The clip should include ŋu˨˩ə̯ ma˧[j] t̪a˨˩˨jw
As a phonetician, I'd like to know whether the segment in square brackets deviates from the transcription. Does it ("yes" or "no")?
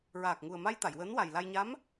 no